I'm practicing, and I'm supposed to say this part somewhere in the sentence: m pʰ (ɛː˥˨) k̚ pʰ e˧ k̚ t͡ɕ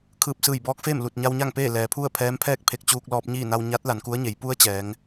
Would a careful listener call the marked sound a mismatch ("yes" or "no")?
no